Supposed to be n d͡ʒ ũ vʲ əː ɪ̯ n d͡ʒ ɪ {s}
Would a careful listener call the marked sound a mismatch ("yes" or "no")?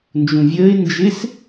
no